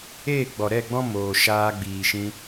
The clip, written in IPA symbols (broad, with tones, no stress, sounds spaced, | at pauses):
eː˦˨ ɡ͡b ɔ˨ ɾ ɛ˦˨ ɡ͡b ɔ̃˦ m oː˨ ʃ aː˧ ɡ͡b iː˨ ʃ ĩ˧